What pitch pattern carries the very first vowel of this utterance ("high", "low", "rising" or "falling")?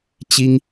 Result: high